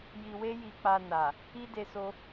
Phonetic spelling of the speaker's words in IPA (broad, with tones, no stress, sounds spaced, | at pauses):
j i˧ w e˦ j i˧ k͡p a˧ n a˨ | i˦ d e˧ s o˧